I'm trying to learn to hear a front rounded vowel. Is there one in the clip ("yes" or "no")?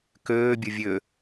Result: yes